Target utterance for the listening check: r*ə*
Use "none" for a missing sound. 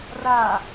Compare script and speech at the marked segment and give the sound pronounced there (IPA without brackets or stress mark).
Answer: a